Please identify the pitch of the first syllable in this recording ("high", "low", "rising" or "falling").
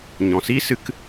low